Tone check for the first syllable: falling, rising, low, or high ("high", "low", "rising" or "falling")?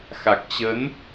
low